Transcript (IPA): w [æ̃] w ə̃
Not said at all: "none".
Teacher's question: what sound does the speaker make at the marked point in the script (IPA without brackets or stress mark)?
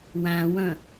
æ̃